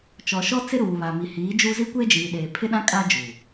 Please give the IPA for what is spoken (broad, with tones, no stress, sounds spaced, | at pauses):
t͡ʃ ɔ˨ ʃ ɔ˦ t͡s ɪ˦ ɾ uː˨ β a˨ m i˨ h iː˨˦ d͡ʒ u˦ z i˦ kʷ e˦ d͡ʒ iː˨ ɗ eː˨ pʰ ɪ˦ ɗ ã˦ kʼ a˦ d͡ʒ u˨